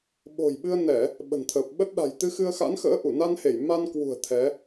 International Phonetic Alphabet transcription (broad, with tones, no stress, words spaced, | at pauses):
ɓo̤˨˩jɓɨ˧ə̯ nɛ˧˩˨ | ɓə̤˨˩nt̪ʰəː˨˩p̚ɓə˦˥t̚ ɗa̤˨˩jt̪ɨ˧xɨ˧ə̯xa̰˧˥n xə̰ː˧˥ʔu˧˩na˧nhe˧˩j ma˧nkwṳ˨˩ə̯ t̪ʰɛ˨˦